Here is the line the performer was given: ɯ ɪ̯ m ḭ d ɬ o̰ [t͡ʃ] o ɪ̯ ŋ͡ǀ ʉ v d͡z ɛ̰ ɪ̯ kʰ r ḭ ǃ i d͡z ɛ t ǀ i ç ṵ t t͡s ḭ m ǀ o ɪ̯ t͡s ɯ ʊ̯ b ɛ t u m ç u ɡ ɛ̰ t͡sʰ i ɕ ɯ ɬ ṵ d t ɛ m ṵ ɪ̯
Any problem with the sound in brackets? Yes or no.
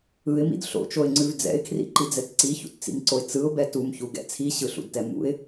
no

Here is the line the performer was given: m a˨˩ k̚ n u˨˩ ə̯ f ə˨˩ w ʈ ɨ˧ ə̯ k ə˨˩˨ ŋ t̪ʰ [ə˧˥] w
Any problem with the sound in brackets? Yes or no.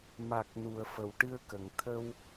yes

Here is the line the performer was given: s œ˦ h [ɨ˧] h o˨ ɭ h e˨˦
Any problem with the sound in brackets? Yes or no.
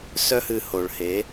no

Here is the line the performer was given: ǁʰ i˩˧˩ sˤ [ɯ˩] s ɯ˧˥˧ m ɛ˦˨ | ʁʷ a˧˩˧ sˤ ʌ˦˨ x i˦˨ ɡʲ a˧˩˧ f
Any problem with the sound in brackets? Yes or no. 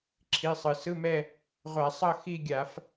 no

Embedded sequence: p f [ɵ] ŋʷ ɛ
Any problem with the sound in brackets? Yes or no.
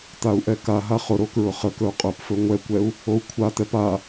no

